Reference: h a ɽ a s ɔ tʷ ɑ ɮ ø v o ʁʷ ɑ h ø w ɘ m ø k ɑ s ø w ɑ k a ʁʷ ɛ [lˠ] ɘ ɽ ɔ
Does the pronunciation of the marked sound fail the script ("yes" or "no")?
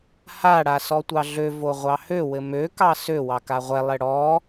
no